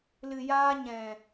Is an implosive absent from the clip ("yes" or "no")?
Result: yes